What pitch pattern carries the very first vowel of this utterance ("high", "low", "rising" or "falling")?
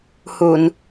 low